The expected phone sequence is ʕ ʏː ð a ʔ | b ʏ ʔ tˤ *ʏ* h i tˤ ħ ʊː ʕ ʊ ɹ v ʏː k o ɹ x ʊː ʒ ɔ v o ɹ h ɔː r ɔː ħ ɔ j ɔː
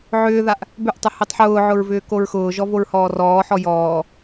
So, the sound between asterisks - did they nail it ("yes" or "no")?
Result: yes